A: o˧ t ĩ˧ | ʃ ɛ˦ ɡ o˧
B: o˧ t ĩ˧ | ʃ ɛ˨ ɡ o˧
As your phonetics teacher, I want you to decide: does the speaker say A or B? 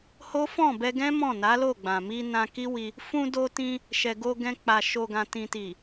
B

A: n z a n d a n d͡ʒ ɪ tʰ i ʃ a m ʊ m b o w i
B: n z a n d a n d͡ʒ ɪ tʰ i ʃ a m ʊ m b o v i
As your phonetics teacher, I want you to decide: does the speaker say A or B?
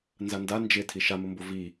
B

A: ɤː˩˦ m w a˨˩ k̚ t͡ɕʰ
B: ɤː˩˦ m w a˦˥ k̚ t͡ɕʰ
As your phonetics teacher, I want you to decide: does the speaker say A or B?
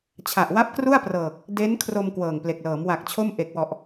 A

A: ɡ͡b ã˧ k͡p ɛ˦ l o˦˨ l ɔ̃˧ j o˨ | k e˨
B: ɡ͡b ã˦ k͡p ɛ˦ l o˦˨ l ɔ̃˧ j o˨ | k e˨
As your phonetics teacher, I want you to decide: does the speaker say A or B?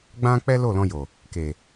B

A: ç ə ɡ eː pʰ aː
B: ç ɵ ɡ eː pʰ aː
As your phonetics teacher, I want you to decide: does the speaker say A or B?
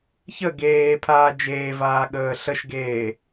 A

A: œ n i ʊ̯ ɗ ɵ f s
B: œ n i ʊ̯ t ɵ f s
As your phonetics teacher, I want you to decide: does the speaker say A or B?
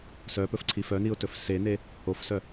B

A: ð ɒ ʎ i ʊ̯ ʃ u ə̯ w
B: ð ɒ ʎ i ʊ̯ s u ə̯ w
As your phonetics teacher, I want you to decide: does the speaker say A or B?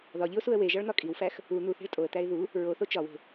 B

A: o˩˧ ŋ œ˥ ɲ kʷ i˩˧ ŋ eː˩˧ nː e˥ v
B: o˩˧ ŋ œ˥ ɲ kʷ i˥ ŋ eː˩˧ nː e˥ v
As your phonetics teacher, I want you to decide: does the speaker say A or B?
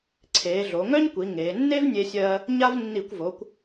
A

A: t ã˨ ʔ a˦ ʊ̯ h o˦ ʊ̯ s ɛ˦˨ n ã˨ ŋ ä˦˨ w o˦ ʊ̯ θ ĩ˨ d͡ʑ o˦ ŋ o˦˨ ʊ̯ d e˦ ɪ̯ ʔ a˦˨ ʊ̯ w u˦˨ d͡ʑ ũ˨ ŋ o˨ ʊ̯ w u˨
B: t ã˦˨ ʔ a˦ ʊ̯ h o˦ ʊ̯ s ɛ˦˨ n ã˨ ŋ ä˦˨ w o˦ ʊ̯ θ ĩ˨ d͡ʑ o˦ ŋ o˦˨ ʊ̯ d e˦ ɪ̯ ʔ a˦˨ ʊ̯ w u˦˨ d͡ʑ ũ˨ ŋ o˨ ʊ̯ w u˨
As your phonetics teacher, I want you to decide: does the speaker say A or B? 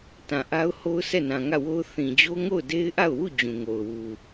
A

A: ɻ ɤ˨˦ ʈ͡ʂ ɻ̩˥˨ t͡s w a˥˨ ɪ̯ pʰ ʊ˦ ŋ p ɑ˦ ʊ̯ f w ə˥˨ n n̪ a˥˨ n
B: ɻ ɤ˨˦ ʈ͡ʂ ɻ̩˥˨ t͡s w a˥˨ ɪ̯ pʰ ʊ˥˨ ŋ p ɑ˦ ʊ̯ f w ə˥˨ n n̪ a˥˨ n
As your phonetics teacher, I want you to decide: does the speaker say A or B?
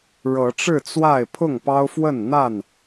B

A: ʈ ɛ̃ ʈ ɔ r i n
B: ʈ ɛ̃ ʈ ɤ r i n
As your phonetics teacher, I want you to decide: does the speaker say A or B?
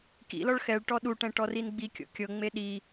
A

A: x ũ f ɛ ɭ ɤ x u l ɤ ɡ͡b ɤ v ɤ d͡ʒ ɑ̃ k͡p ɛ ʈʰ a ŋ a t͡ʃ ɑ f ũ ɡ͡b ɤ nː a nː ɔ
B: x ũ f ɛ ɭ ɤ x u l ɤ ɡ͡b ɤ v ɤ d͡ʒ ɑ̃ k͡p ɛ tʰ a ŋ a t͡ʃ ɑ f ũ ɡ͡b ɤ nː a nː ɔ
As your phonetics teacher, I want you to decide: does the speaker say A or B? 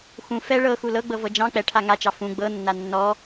A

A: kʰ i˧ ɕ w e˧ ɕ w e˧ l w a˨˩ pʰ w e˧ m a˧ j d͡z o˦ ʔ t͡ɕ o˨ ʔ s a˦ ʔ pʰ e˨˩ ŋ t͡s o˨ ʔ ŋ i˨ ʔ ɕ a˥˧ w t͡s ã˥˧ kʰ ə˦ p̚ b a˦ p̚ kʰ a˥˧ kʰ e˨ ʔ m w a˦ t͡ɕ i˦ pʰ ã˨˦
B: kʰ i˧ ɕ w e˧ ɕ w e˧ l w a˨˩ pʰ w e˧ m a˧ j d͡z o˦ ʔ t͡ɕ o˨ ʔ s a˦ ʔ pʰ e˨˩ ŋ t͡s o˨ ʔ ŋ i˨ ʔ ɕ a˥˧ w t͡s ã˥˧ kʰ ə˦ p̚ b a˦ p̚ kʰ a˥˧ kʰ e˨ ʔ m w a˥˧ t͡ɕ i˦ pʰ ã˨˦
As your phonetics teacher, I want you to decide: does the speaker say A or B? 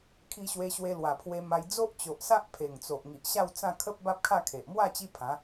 B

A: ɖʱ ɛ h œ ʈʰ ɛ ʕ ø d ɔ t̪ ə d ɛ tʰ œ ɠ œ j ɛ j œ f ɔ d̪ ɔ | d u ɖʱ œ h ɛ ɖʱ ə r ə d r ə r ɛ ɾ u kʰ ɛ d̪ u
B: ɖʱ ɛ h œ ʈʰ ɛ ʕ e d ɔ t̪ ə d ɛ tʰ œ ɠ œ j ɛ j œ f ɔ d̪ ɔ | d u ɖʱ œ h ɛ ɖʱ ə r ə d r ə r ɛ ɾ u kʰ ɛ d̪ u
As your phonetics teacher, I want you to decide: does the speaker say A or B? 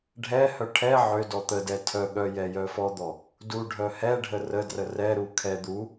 A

